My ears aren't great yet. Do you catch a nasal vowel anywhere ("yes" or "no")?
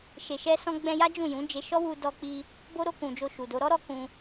yes